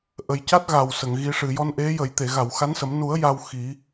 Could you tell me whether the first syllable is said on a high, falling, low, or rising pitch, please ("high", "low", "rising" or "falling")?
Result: low